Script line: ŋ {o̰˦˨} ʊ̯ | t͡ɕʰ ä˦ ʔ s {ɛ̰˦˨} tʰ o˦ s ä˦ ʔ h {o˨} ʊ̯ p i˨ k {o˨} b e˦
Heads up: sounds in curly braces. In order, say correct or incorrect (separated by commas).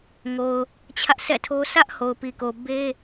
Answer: incorrect, correct, correct, correct